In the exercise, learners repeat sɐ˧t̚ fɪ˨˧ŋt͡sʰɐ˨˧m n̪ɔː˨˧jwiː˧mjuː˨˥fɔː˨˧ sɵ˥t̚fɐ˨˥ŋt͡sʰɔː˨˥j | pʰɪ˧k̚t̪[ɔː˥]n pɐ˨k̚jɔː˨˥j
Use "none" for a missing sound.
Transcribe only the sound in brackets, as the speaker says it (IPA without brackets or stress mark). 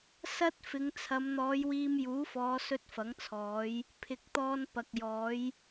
ɔː˥